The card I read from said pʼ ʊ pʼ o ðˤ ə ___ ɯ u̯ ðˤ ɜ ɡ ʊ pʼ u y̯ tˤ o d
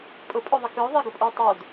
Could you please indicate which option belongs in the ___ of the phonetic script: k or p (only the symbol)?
k